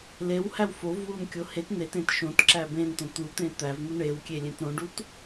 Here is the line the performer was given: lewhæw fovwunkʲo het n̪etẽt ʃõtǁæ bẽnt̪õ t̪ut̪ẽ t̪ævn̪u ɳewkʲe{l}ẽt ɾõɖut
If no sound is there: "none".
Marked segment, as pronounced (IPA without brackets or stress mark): lʲ